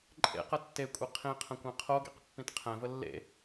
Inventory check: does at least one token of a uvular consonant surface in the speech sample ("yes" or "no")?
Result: yes